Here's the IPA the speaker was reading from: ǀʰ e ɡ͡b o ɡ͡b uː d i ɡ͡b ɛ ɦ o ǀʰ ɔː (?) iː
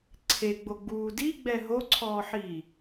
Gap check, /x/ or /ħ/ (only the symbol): ħ